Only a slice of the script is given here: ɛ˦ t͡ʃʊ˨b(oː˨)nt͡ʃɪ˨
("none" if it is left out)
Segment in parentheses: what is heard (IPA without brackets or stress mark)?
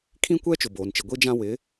oː˨